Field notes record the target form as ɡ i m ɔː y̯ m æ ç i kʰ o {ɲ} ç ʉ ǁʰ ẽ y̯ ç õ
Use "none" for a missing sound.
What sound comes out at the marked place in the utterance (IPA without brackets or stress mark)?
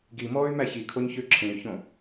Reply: ɲ